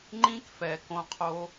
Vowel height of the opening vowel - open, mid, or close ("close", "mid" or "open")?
close